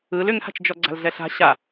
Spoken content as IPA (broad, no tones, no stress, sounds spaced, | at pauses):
ɯ l ʏ ŋ h a̤ t͡ʃ d͡ʒ ɔ ɡ͡ǀ a̤ l ɮ ɛ ɬ a̤ ɕ a